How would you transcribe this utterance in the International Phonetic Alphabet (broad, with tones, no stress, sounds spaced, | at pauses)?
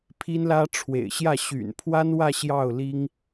pʰ i˥ n l ä˥ ʈ͡ʂʰ w ḛ˨˩ ɪ̯ ɕ j ä˥˩ ɕ y̰˨˩ n pʰ w a˥ n w ä˥˧ ɕ j ɑ˥˩ ʊ̯ l i˥ ŋ